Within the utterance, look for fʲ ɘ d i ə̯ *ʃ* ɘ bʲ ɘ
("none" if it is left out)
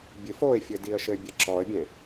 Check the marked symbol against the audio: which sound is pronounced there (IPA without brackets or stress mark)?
ʃ